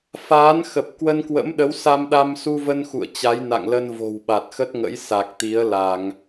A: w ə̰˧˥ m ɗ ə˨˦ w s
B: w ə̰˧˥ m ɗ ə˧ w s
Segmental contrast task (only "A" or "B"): A